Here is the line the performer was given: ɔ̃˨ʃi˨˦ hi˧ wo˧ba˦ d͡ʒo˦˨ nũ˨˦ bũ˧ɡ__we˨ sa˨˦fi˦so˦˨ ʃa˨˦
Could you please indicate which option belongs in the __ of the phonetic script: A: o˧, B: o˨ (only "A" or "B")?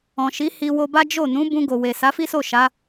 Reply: B